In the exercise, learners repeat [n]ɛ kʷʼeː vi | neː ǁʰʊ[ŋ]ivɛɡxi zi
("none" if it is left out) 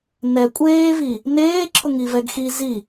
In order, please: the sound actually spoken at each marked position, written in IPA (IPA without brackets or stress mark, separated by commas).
n, ŋ